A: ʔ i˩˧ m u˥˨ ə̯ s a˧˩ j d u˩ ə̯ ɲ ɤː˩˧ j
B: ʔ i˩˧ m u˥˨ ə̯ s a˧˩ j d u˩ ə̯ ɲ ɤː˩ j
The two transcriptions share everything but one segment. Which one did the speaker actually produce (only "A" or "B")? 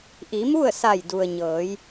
A